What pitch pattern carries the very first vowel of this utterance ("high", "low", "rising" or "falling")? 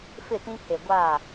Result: falling